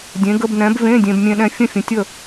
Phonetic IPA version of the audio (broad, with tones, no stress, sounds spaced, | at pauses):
dʲ ẽ˧˥ ɡ ə˧˥˧ b n ɛ̃˧˥ b v ẽ˧˥˧ dʲ ẽ˧ b mʲ ẽ˧ ɗ ɛ̃˧ fʲ ə̃˥˨ fʲ ə̃˧ tʲ ə˥˨